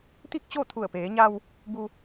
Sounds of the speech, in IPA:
t̪ i˥˨ k̚ t͡ɕ o˥˨ t̪ʰ u˧˩ ə̯ p eː˩˧ ɲ a˧ w | b u˧

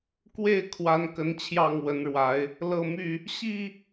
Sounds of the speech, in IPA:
k w e˥˨ ɪ̯ kʰ w a˨˦ n k ə˨˦ n t͡ɕʰ j ɑ˥˨ ŋ w ə˨˦ n ɻ w a˨˦ ɪ̯ | l ɤ˥˨ m y˥˨ | ɕ i˥˨

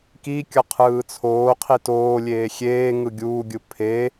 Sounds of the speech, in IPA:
k i kʲ ʌ qʰ ɯː t͡sʰ oː qʰ i t oː lʲ eː xʲ eː ŋ ɯ ɡʲ uː ɡʲ ɯ pʰ e

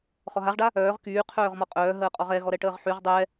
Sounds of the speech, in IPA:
χ ɔ ɦ a ʁ ɖ a | œː ʁ k yː qʰ œː ʁ m ɔ qʼ œː ɦ əː qʼ ɔ ʁ ɛ ɣ ɔ ɾ ɛ ʈ əː ʁ ħ y ʁ dˤ ɛ

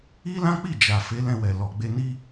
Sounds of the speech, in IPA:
i˦ l ã˦ k͡p i˦˨ d͡ʒ a˨ f e˨˦ l ɛ̃˧ w ɛ˨ l ɔ˨ ɡ͡b e˧ n i˦

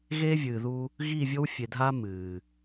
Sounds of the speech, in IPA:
ɣ eː˦ vʲ ɨː˨ ð u˦ | ɣ iː˦˨ vʲ o˦ w fʲ e˨ dʱ aː˦ m ɨː˨

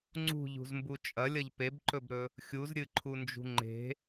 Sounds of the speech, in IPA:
ŋ͡ǀ ṳ ʎ ṳ z m b u t͡ʃʼ ɐ lʲ ɐ ʎ p e b ǃ ɵ b ɾ ɵ | xʲ u z ɾʲ ɨ ǃʰ u n d͡ʒ ṳ ŋ͡ǃ e̤

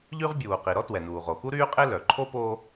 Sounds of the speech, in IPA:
ʎ y˥ ʁ bʲ uː˩ q i˩ ɾ ɔ˥ t w ɛ˩ n uː˩ ʁ o˩ x u˥ ɾ yː˥ qʼ e˥ l œ˩ ǃʰ o˥ p oː˥

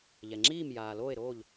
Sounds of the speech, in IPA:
ʎ ɛ˩ ŋ͡ǁ iː˥˩ m j aː˩ l oː˥˩ e̯ ɾ oː˥˩ ʎ

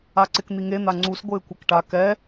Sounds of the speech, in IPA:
a ǀ ɪ k n̪ i ŋ e n̪ a ŋ͡ǀ u s ɡʷ ɪː kʷ ɛ k ʈ a k ɛ

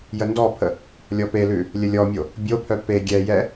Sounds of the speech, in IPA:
j ə n d ɔ pʰ ə | lʲ ɔ p e l ʉ | lʲ ə lʲ ɔ mʲ o | bʲ o pʰ œ p e ɡʲ ɛ j ɛ

